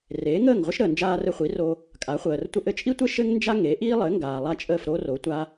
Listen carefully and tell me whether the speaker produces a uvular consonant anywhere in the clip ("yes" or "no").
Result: yes